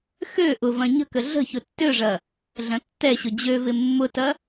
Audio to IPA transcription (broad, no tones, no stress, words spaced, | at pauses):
xø ʔʊvɐ̃ ɲə̤kə ɮə̤ çʊtːøʐɐ | ɮɐ̃tːɛɕʊ d͡ʑøvɪ mːʊtɐ